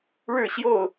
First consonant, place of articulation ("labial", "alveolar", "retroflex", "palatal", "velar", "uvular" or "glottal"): retroflex